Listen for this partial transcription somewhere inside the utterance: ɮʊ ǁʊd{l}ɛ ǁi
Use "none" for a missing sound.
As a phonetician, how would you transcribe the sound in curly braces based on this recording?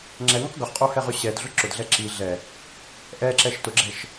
ɮ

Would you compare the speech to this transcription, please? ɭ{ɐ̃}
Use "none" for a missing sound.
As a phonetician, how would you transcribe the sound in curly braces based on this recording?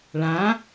ã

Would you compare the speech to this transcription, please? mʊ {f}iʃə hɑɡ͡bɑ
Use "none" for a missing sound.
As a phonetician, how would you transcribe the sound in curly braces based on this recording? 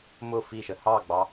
f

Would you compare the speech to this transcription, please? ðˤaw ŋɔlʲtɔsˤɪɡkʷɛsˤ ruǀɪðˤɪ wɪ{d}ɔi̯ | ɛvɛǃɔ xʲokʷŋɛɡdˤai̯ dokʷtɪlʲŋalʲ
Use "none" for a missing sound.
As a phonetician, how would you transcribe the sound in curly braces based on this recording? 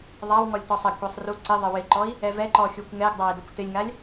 ǃ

